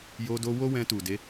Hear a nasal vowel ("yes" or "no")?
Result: yes